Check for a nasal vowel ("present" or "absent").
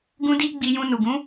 present